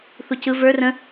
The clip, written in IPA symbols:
θ u c ɯ v ə˞ r ə̃

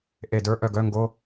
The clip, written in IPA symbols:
ʔ e˧˩ d ə˞˧˥ ʔ œ˧ ɡ œ˧˥˧ ŋ ɡ o˧˥˧

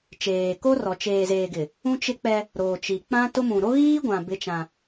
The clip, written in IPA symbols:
t͡ʃ eː˨ k o˦ r ɔ˨ t͡ʃ eː˨ z eː˨ ɡ ɪ˨ | ũ˦ t͡ʃ ɪ˦ k͡p ɛ˦ | ɾ oː˨ t͡ʃ i˨ k͡p ã˦ t ʊ˦ m ũ˨ ɾ o˦ ɣ iː˦ ɡʷ ã˨ b ɪ˦ t͡ʃ ã˦

